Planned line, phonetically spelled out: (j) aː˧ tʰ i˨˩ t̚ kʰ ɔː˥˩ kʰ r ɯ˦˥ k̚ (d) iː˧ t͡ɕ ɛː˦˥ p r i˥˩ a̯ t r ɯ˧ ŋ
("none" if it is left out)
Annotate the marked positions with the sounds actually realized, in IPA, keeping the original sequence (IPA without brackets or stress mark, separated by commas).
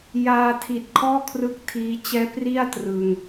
j, tʰ